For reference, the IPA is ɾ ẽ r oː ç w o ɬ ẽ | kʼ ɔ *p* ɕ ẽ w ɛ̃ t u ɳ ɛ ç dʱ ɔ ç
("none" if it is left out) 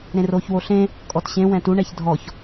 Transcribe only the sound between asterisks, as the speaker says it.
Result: t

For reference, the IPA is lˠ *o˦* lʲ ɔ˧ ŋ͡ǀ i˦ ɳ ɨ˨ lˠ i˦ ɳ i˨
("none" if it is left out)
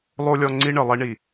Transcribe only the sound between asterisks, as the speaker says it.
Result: o˦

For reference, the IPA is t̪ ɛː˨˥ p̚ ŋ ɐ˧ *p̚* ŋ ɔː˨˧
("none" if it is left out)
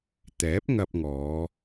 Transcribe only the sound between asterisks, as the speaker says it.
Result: p̚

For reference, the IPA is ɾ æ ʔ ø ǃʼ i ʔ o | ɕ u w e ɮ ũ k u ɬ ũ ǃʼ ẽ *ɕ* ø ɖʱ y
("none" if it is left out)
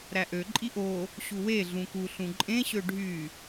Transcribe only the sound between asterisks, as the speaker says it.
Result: ɕ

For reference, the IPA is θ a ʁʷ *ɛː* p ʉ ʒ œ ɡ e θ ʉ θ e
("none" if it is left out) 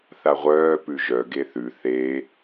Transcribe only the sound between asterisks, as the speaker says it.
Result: œː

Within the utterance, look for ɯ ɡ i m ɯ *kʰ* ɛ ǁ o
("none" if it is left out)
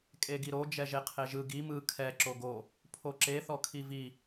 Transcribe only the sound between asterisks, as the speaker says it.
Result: kʰ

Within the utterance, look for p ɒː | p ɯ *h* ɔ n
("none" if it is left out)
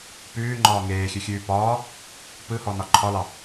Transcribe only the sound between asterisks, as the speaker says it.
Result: h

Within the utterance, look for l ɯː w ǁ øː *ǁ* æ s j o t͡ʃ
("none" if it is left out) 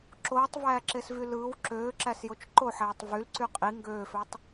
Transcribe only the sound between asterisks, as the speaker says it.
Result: ǁ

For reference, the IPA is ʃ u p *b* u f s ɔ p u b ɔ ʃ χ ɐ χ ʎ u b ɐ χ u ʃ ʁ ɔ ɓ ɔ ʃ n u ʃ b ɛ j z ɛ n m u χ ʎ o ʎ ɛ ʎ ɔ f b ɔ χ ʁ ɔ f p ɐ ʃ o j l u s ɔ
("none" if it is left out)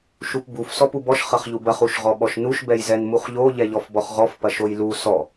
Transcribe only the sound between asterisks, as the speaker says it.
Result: b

